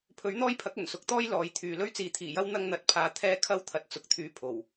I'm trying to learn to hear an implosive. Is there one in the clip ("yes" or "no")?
no